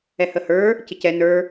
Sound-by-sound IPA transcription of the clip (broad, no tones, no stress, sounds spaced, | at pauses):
ɛ h ə h ə˞ | c ɪ c ɛ n ə˞